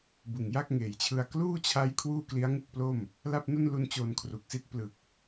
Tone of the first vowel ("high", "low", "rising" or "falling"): low